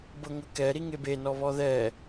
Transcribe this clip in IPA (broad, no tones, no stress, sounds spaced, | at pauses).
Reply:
b ɤ ŋ ɤ k ɛ ɾ i ŋ e b e n ɔ β ɔ ð ɛ